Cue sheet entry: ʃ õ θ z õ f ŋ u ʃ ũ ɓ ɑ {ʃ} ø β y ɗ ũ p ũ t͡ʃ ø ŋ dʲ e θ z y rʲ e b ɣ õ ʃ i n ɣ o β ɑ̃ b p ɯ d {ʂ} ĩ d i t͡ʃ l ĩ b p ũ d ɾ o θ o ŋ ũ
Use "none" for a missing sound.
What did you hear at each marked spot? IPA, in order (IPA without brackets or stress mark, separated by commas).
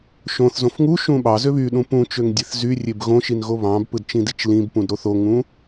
z, t͡ʃ